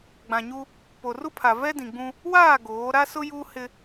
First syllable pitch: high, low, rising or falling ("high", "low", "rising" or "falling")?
low